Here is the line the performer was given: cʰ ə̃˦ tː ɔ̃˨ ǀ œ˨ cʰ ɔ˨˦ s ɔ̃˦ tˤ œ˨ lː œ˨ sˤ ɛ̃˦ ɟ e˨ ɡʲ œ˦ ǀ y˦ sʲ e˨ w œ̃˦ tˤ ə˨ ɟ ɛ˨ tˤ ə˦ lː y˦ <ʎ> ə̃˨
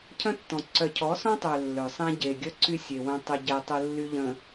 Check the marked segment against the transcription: correct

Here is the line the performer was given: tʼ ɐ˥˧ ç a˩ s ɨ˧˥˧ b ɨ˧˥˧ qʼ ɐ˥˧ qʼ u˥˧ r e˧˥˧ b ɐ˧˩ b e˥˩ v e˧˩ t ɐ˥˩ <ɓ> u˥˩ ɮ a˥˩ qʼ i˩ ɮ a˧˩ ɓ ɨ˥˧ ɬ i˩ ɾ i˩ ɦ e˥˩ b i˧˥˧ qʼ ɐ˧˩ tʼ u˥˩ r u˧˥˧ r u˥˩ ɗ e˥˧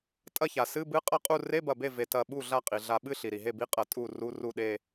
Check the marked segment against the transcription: correct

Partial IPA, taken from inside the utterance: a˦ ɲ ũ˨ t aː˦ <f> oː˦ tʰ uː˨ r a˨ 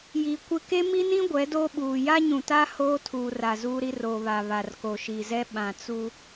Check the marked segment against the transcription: incorrect: h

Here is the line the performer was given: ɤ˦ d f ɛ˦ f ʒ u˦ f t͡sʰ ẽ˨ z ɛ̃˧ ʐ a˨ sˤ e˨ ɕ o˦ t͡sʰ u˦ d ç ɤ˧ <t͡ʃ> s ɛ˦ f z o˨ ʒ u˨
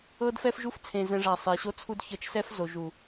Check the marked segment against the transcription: correct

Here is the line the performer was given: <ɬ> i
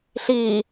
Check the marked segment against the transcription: correct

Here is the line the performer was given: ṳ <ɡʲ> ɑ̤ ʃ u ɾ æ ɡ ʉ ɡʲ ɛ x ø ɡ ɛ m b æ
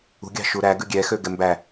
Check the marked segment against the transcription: correct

